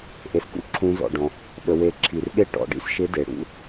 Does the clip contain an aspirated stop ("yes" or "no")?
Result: yes